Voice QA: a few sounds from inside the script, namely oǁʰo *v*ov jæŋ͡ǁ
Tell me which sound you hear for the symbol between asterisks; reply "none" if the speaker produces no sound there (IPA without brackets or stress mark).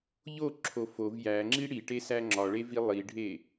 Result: f